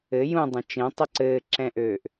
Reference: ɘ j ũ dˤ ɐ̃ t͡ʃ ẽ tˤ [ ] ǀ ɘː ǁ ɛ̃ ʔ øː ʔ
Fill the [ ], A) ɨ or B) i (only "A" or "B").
A